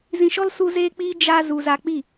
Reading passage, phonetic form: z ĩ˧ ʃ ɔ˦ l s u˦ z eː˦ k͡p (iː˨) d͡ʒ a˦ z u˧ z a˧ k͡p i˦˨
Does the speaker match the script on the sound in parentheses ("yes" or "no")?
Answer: no